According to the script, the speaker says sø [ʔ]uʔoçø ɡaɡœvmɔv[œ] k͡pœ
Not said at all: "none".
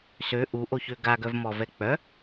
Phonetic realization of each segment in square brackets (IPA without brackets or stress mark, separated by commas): ʔ, ɛ